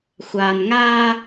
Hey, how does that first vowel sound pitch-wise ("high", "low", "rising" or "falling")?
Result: low